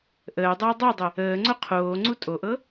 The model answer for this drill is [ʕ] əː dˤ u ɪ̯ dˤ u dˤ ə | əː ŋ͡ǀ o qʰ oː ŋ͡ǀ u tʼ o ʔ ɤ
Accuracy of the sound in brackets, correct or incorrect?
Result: incorrect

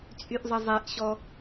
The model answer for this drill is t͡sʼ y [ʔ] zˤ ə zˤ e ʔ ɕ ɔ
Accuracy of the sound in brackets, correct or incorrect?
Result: correct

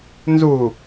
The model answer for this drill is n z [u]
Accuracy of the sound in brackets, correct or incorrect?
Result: correct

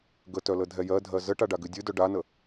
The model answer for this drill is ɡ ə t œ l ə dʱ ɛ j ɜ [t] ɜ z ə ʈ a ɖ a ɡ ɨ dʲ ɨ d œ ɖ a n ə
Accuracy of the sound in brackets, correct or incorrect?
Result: incorrect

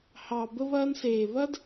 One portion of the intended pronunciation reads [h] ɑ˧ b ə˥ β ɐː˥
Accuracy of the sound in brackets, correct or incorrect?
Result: correct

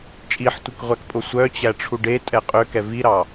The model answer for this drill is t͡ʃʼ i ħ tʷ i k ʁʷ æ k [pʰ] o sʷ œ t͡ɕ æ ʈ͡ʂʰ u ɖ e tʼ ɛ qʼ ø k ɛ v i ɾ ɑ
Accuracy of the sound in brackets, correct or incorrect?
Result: incorrect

